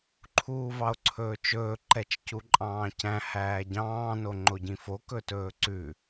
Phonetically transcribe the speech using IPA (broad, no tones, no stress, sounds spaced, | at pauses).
ǃʰ uː v ɑ o̯ ǀʰ ɵː t͡ʃ ɵː ǃ ɛ t͡ʃ c u ǃʼ ɑ̃ː c æ̃ h æː ɟ ɑ̃ː n o ŋ͡ǃ o ɟ ĩ f o k ɵ t ɵː ǀ ʉ